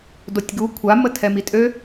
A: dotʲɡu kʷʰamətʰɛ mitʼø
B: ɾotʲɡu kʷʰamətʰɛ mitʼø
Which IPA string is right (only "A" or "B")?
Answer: A